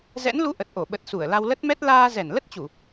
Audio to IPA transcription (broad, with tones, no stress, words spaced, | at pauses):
zɛ̰˧˥nlu˧ ʔə˨˩t̚ʔo˧˩ɓə˨˩t̚ su˧˩ə̯la˧wlə˦˥t̚mɛ˦˥t̚ laː˧zɛ˧˩n lə˦˥t̚t͡ɕu˧˩˨